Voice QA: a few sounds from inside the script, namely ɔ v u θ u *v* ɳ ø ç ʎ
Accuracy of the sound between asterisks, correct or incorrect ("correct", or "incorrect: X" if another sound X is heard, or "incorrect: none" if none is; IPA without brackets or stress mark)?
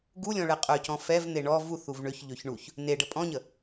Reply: correct